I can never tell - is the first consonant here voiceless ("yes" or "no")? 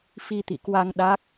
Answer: yes